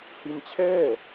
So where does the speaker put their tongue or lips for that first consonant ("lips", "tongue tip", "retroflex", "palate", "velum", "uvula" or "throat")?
throat